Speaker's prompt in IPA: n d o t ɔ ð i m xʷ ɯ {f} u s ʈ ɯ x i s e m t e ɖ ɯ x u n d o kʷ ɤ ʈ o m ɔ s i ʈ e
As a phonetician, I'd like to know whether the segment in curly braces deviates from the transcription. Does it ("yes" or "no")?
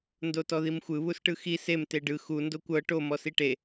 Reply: yes